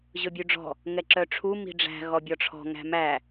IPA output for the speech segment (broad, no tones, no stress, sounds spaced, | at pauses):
ʑ ɵ bʲ ʉ ɖ͡ʐ ɔ̤ | ŋ ɛ ǁ œ ʈ͡ʂʰ u m i̤ ɖ͡ʐ æ̤ ɣ ɔ bʲ ɔ ʈ͡ʂʰ ɔ̤ ŋ æ̤ m æ